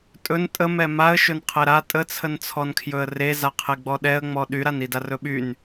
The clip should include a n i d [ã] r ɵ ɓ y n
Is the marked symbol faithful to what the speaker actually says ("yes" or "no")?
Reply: no